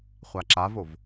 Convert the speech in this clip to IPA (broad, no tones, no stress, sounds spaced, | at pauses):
χʷ a ǁ a v o v